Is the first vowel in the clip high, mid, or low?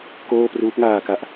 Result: mid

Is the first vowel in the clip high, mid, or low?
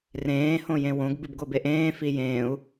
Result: mid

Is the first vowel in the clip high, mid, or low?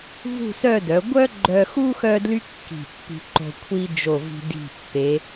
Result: high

